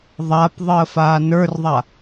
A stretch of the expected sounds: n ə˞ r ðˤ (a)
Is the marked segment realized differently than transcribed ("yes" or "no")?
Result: no